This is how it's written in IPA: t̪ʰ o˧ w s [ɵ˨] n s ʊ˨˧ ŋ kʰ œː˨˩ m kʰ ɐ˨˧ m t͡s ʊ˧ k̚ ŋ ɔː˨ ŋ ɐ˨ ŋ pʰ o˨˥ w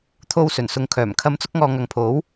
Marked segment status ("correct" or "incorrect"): incorrect